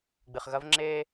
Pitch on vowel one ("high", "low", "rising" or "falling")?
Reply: low